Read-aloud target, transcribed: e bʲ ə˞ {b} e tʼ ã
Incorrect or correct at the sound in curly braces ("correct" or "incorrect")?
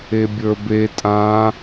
correct